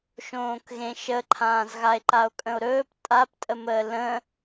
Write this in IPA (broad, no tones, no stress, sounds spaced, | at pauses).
ʃ õː k ɣ ẽ ʃ ə ǃʰ ãː z ɣ a e̯ ǃ a o̯ kʼ ə̃ o̯ ɾ ɵː p tʼ a p tʼ ə m əː l ə̃